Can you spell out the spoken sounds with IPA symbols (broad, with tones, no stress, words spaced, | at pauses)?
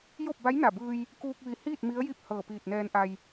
jo˥˨p̚ba˧˥jna˧˩bɯː˧j | kuː˧k̚ʋi˧˩hiː˥˨t̚ mi˧˥ə̯ji˥˨p̚ hɤː˧˩piː˧˩t̚nɛː˧nʔa˧j